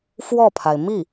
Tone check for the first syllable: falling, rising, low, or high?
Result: falling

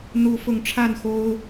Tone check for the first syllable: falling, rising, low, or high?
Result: rising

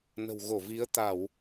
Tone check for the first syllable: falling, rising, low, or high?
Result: low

